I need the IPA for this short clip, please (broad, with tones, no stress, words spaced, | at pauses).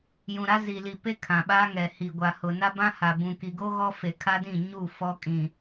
jũ˨ɾa˦zi˨li˨ pe˦ kʰã˨ɓa˦ŋɛ˨hi˨ ɡʷa˨hʊ˨ na˦bã˦ha˨ bũ˨ki˨ɡo˦ ɣɔ˦fe˨kʰa˦dĩ˦˨ ɲu˦˨ fɔ˦kʼĩ˨